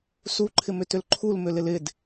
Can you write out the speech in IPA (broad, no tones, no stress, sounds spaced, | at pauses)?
s u ǃʰ ɪ m ʏ t ʏ l ǃʰ u l m ʏ l ɪ l ɪ d